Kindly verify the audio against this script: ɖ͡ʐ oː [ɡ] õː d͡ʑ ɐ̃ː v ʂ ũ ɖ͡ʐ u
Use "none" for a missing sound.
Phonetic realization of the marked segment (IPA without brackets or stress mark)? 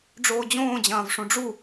d͡ʑ